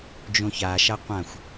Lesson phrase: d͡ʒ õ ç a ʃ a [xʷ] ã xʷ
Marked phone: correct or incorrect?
incorrect: qʷ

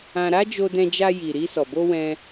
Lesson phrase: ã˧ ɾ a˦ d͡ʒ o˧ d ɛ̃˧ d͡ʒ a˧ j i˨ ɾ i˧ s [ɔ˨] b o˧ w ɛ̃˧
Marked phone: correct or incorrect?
correct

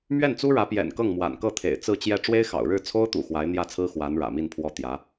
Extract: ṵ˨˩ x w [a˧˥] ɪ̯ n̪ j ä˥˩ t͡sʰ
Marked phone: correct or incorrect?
correct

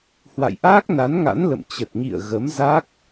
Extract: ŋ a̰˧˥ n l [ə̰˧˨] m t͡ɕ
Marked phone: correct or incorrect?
correct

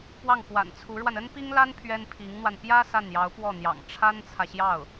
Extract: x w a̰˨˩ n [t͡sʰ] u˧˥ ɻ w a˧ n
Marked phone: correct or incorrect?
correct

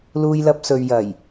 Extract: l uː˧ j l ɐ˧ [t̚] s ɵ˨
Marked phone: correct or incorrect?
incorrect: p̚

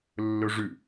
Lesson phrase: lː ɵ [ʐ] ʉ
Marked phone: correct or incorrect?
correct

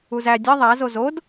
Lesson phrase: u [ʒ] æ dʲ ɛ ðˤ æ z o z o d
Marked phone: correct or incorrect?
incorrect: z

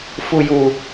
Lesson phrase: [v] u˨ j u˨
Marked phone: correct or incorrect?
incorrect: f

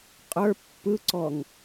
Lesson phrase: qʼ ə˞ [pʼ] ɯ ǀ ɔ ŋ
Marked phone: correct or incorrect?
incorrect: pː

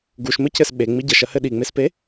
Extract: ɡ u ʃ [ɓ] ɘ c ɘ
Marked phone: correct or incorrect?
incorrect: m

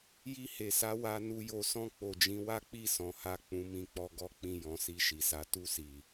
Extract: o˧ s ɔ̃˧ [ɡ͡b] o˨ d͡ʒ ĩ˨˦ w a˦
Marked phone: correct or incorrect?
incorrect: k͡p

